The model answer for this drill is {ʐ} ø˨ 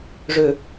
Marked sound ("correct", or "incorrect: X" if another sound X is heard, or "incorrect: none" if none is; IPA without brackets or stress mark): correct